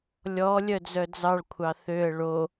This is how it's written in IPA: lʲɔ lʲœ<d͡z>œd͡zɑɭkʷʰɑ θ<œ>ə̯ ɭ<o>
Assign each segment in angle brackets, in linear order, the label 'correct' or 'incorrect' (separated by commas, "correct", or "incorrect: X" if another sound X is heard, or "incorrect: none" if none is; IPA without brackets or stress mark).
correct, incorrect: ø, correct